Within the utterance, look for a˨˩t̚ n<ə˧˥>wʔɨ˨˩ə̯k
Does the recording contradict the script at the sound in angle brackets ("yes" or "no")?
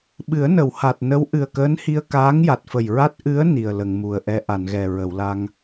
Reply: no